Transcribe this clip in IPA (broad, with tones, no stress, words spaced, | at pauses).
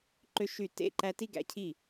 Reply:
ǃø˦ʃy˦˨ tḛ˦˨ǃæ˦ ti˦ɡæ̰˨˦cʰi˦˨